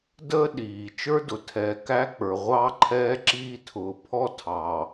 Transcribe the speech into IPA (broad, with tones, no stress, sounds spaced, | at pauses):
d əː˦ ɗ iː˨ t͡ʃ ə˞˦ d ʊ˨ tʰ ɛː˨ k æ˦ k͡p ə˞˨ ʁʷ ɑ˦ ǃʰ ɛː˦ ǁ iː˦ tʰ ʊː˨ pʰ ɔ˦ tʰ ɑ˨